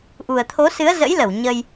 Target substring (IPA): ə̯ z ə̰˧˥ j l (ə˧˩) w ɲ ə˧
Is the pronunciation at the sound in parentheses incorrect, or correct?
correct